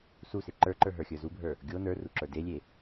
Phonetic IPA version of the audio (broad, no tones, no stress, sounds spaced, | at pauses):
s u s e ǃ ə˞ ǃ ə˞ ɦ ə˞ xʲ ə˞ z u bʱ ə˞ | ɡʲ o n ə˞ r u ǁ ə˞ d e lʲ e